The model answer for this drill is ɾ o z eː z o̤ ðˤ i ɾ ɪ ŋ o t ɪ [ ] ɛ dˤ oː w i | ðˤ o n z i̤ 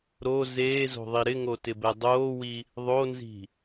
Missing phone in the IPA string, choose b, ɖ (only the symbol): b